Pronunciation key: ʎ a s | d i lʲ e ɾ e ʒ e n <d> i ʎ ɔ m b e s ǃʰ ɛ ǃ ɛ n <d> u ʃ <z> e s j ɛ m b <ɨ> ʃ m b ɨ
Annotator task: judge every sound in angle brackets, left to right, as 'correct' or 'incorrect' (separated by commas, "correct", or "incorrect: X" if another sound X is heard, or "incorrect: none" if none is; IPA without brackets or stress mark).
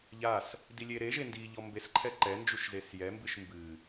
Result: correct, incorrect: d͡ʒ, correct, correct